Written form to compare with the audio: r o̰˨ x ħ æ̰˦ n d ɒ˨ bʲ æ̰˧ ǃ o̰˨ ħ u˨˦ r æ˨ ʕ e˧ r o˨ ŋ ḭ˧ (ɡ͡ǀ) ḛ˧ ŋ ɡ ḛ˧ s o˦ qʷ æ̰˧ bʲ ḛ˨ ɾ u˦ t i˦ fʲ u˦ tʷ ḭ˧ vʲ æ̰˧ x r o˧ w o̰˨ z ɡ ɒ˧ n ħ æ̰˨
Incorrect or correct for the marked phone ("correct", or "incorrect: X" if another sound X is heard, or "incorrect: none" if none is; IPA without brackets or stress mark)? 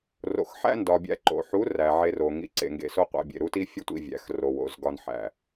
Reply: incorrect: ǀ